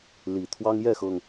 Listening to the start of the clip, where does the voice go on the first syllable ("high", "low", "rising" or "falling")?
low